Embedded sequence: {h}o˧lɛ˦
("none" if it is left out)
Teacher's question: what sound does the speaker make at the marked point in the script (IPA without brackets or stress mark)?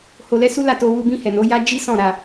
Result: h